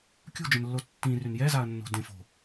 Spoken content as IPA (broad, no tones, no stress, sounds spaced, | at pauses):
kʲ ṳ d͡ʒ ə̃ n lː o tː ĩ r y n j ɛ z a ɐ̯ nː o̤ d ẽ f o̤